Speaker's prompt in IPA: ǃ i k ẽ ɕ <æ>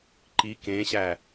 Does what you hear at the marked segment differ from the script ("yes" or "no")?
no